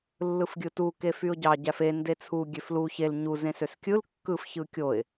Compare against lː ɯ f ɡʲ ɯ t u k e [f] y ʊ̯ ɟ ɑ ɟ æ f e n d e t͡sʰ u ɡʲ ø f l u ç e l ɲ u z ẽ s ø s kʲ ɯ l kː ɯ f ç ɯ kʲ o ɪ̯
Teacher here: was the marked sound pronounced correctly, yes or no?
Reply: yes